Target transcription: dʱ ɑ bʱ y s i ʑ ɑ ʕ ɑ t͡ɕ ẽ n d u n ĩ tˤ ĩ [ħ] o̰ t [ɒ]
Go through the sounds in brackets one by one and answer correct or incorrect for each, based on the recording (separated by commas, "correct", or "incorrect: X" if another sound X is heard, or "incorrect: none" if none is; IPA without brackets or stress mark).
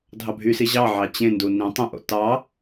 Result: incorrect: ʔ, incorrect: ɑ